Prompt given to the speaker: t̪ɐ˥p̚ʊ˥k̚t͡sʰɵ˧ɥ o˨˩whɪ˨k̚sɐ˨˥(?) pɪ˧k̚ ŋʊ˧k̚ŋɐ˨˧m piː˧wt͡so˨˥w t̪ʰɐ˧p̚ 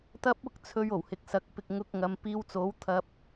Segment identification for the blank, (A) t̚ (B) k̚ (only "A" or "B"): B